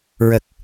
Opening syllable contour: low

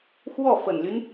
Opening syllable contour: falling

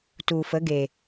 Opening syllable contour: low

